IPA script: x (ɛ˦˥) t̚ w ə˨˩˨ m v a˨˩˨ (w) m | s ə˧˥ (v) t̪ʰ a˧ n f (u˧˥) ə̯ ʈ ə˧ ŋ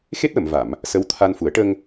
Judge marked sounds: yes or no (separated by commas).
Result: no, no, no, no